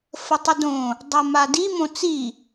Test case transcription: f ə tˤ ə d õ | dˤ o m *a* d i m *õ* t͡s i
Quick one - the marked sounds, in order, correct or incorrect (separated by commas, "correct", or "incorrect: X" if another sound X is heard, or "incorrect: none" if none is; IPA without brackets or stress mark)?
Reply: correct, correct